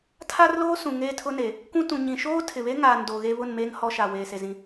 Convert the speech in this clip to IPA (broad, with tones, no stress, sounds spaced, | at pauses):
tʰ a˦ r l oː˦ s ũ˨ ŋ eː˦ tʰ ʊ˦ n e˨ | kʷ ũ˦ t ũ˨ ɲ ĩ˨ ʃ oː˦ tʰ ɪ˨ β e˦ ŋ aː˨ n d oː˨ ɣ e˦ β ʊ˦˨ n m eː˦ ŋ h ɔ˦ ʃ a˨ w eː˨ s e˨ z ĩ˦